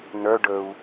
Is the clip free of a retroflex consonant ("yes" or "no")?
no